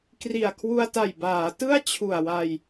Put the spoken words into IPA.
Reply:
k r i˨˩ a̯ kʰ w u˧ a̯ t a˨˩ j b aː˩˦ t ɯ˥˩ a̯ t͡ɕʰ u˨˩ a̯ w a˧ j

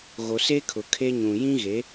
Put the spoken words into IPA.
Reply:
ɣ o˨ s e˦ kʰ ʊ˨ kʰ e˦ ɲ ũ˨ j ĩ˦ ɣ e˨˦

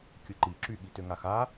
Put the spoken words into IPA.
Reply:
kʲ ɯ ǃ i ǁ y ɠ i t ø ŋ a x a

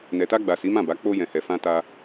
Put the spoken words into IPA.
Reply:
n ɛ˨ t a˧ ɡ͡b a˨ s i˨˦ m ã˦˨ b a˨˦ k͡p o˧ j ɛ̃˨ h ɛ˨ f ã˧ t a˧

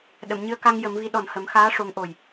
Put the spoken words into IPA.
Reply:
ɗ ə˨˩˨ m ɲ ɨ˧ ə̯ k a˧ ŋ j ə˨˩˦ m v i˧˥ ɗ ɔ˨˩ n h ə˨˩˦ m x aː˧˥ ʂ o˧˥ ŋ ʔ o˨˩ j

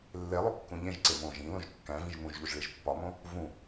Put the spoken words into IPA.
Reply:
lː e lˠ u kː ũ ʎ ẽ ʒ ǀ e m õ ʒ ĩ l õ ʒ kː æ̃ v ĩ ʒ m ũ ʒ ʎ u ʒ ɭ i ʒ pː ɒ m õ | v ũ

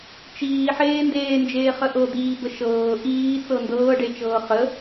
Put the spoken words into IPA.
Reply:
t͡ʃ iː ħ eː n d eː n d͡ʒ eː χ ə ʔ ɤ d̪ iː b ə ʃ ɤː ʔ iː t͡s ɤ n d ɤː ɖ e t͡ʃ ɤː χ ə

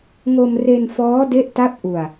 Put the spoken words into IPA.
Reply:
ŋ o˧ m r e˧ n f ɔː˦˥ d e˦˥ ʔ t a˦˥ p̚ ʔ u˧ a̯

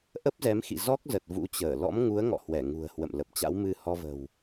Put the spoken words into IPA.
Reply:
ʔ ə˦˥ p̚ z ɛ˨˦ m x ḭ˧˨ z ɔ˦˥ k̚ z ə˨˩ t̚ v ṵ˧˥ t͡ɕ əː˧˩ l ɔ̰˧˥ m ŋ u˨˦ ə̯ ŋ ɔ̰˧˨ h w ɛ˧˩ ŋ ṳ˨˩ ə̯ h w ə̰˧˨ m l ə˨˩ p̚ t͡ɕ a̰˧˥ w m ɨ˧ h ɔ˧ v ə̤˨˩ w

